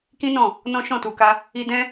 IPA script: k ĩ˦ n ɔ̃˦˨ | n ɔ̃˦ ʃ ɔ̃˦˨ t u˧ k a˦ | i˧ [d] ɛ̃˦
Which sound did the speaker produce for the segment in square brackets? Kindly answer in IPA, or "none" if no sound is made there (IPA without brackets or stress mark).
d